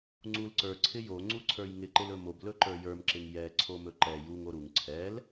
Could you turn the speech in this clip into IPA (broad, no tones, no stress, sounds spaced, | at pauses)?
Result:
ŋ͡ǀ u l ǀ ə˞ ǀʰ ɪ j o ŋ͡ǀ u ǀʰ ə˞ j ŋ ɪ ǃ ɪ l ɵ m o b l ɵ ǃ ə˞ j ə˞ m ǁ ɪ ŋ j ɛ ǀʰ o m ɵ ǃ ɛ j u ŋ o ɾ u ŋ ǀʰ ɛ l